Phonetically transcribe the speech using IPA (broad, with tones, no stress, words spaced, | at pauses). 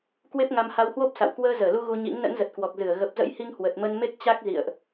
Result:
kwe˦˥p̚ŋa˧mha˧whwo˦˥p̚ sa̰˧˨w kwəː˧zəː˧˩lu˧ ɣu˧ɲḭ˧˥ŋ nə̰˧˥nzə˨˩t̚kwɔ˨˩k̚zɨ˧˩ə̯ ɣə˨˩p̚zə̰˧˥jhi˧ŋ hwə˨˩t̚mə˧nme˦˥k̚ t͡ɕa˦˥k̚ zḭ˧˨ə̯ʔ